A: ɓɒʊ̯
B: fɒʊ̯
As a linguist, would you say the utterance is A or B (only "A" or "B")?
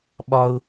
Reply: A